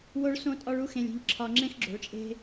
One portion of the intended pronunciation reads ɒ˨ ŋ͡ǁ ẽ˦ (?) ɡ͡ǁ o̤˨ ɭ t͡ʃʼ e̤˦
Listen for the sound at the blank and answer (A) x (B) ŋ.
A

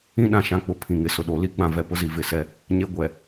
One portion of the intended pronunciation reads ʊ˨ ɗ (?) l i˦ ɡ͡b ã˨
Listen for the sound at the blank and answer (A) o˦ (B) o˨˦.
B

